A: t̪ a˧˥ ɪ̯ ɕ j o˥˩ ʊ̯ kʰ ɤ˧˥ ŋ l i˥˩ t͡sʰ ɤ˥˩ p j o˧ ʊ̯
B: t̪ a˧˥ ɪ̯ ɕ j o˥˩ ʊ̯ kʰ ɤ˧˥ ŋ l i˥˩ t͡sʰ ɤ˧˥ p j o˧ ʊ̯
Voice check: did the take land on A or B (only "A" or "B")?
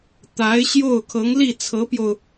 B